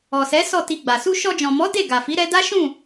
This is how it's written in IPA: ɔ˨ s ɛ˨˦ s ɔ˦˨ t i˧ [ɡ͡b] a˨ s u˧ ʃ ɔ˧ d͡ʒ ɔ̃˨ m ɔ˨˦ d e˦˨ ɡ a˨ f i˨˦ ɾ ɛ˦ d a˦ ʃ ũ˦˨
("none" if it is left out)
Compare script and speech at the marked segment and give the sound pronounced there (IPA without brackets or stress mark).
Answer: ɡ͡b